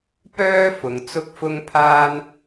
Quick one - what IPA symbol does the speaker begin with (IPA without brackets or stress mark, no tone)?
p